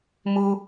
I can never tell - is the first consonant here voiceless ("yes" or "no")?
no